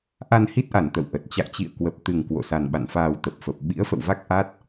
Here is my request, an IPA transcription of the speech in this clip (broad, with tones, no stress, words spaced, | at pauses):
ʔa˧nhi˦˥t̚ʔa˧˩n t̪ə̰˧˨wʔə˨˩t̚ t͡ɕa̰˧˨jt͡ɕḭ˧˨ə̯kwə˨˩p̚ t̪ɨ˨˩ŋ kwo̰˧˨sa˨˩nɓa̰˧˨n faː˨˩wt̪ə˨˩p̚fə˨˩p̚ ɓḭ˧˥ə̯fə̰˧˨wva˦˥k̚ ʔa˦˥t̚